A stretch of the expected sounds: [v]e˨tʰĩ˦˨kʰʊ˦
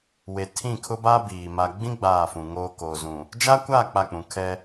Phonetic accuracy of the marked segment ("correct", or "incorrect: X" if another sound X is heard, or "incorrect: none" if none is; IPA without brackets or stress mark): incorrect: w